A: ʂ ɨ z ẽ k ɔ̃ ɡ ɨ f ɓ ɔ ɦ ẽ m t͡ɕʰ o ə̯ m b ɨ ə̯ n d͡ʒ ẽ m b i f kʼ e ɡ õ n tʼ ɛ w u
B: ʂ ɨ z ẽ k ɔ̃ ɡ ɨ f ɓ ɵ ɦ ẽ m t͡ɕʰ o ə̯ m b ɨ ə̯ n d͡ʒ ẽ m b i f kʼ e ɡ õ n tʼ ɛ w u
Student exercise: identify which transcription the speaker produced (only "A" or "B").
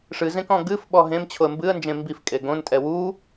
A